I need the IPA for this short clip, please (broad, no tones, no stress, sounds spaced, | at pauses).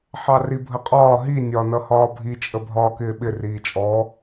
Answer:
ħ ɑ r i bʱ ə qʼ ɒː ɦ i nʲ ɒ n ʌ h ɒː bʱ i t͡ʃʼ ə bʱ ɒː k ɪː ɓ ɪ r iː t͡ʃʼ ɔ